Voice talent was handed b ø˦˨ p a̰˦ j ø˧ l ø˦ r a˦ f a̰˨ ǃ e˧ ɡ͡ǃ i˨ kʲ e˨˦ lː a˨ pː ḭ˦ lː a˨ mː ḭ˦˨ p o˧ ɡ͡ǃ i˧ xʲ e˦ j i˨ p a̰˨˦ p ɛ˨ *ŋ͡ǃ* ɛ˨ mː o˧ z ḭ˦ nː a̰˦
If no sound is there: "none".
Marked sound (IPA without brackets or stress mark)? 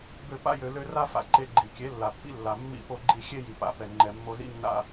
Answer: ŋ͡ǃ